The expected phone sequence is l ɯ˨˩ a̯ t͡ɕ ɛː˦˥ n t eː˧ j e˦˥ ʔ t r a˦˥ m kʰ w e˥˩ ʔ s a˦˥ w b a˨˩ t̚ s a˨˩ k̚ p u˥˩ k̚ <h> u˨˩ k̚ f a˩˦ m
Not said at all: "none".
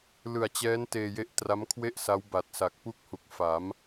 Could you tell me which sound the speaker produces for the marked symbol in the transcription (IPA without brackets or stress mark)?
h